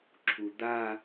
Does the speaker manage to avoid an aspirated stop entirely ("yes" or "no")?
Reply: no